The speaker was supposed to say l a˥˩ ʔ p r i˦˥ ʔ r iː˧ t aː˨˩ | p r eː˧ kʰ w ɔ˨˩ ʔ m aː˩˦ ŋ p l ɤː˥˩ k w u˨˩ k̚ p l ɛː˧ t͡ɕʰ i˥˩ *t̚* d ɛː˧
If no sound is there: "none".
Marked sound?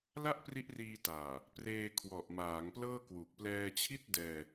t̚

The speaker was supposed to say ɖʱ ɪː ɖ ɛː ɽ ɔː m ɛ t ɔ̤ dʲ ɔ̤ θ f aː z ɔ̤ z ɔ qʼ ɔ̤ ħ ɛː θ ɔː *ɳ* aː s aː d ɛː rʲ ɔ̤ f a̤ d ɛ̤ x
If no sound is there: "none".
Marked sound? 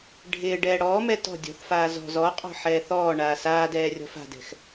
ɳ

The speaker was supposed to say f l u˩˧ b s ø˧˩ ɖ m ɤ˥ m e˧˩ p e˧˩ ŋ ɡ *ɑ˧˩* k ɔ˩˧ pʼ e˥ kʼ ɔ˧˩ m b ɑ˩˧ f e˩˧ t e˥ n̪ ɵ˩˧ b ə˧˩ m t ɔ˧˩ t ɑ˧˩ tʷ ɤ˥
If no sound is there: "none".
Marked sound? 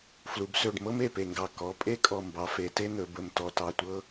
ɑ˧˩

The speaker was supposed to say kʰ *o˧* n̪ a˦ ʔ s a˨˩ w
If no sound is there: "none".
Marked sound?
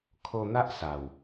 o˧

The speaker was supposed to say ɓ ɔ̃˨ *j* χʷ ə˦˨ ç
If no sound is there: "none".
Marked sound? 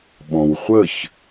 w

